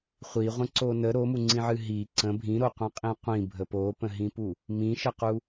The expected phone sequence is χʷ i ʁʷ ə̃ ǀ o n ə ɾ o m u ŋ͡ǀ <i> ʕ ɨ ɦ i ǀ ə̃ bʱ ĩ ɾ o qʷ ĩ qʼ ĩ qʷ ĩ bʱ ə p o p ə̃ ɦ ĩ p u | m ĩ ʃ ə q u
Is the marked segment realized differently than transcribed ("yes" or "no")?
yes